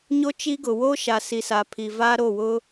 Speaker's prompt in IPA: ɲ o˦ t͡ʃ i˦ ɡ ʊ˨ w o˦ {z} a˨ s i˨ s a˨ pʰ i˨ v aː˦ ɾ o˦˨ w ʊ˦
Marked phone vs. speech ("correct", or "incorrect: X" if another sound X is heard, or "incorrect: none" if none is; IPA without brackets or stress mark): incorrect: ʃ